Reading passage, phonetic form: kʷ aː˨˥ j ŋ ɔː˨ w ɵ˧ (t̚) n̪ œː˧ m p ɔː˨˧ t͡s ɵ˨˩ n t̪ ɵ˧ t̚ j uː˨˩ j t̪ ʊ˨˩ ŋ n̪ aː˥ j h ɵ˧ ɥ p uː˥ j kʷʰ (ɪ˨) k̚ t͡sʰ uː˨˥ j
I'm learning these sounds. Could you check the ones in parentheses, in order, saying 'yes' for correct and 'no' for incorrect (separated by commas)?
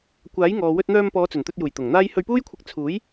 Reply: yes, no